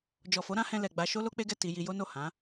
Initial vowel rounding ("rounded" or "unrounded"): rounded